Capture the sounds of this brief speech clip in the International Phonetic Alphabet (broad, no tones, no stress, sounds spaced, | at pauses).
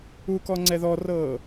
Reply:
u k ɔ ŋ͡ǀ ɛ ð ɔ r ɤː